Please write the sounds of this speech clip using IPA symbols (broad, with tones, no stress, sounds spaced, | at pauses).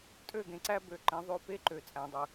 tʼ ø˦˨ ɡ ẽ˨ ǀ æ˦ b ø˨ ǃ ẽ˨˦ ðˤ ø˦˨ p e˦ ǃ ø˨ t͡sʼ æ̃˨ dˤ ɯ˨